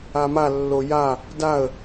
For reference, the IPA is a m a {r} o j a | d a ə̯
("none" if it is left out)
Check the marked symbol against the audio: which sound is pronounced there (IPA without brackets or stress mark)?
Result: lː